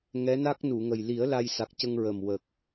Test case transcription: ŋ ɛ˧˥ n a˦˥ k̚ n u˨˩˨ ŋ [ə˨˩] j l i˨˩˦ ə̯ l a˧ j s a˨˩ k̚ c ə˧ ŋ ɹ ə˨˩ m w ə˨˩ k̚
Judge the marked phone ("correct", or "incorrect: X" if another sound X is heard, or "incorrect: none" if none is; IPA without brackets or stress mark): correct